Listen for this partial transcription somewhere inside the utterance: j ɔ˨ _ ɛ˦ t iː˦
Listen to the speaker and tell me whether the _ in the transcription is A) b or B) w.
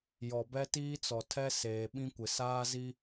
A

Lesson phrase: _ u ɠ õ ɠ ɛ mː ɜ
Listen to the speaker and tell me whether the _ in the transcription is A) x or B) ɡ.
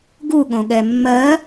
B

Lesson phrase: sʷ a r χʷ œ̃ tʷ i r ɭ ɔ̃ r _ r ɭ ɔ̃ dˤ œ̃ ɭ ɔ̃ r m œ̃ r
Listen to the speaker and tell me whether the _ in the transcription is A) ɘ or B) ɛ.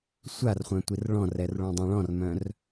B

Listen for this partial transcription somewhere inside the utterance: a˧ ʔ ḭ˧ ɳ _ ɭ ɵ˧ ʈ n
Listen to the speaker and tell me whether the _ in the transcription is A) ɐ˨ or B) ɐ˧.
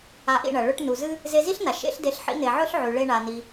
A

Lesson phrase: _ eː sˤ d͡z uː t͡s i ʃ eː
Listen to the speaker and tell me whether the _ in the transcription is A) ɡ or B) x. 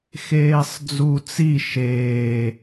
B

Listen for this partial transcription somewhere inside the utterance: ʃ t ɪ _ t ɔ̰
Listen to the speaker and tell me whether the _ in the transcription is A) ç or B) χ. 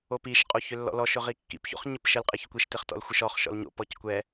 B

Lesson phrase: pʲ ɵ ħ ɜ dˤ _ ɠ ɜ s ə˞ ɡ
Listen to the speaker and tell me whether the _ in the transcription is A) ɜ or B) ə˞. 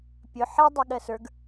A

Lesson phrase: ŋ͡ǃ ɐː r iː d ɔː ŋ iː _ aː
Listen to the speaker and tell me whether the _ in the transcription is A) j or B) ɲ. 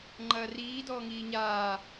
B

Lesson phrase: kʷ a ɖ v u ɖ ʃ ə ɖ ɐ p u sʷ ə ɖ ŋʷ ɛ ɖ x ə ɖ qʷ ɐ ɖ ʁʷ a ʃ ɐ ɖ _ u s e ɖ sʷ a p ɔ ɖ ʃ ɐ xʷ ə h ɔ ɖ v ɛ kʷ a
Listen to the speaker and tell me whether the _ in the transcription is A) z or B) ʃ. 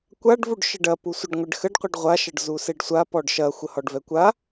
A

